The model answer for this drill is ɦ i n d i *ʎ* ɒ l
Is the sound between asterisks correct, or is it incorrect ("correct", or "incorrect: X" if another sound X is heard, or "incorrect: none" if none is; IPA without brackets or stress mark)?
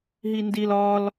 incorrect: l